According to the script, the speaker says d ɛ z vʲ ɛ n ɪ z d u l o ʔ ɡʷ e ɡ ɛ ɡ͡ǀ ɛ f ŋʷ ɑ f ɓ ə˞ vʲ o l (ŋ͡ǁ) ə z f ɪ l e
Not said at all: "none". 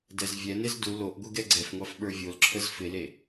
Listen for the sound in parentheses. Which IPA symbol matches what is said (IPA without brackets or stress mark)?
ǁʰ